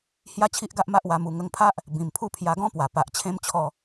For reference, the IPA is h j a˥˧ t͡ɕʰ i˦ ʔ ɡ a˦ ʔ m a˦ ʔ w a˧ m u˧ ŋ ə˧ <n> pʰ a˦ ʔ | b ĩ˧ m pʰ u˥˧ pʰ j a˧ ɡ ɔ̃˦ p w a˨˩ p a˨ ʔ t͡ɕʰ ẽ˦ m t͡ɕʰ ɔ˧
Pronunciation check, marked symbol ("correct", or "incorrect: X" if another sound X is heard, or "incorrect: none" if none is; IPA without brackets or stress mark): incorrect: ŋ